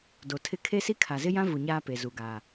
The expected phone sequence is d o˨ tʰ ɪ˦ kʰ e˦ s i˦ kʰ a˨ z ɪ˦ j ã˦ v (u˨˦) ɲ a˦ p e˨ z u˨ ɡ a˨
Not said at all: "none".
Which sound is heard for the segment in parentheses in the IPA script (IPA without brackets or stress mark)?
u˨